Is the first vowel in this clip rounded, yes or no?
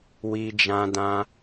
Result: no